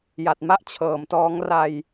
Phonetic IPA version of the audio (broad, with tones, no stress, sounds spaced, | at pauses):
j a˨˩ t̚ m a˥˩ ʔ t͡ɕʰ ɤː˩˦ m t ɔː˦˥ ŋ r a˧ j